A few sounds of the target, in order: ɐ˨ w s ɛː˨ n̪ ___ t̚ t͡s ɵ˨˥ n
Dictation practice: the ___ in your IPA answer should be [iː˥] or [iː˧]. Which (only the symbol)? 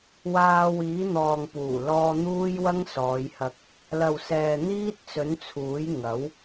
iː˥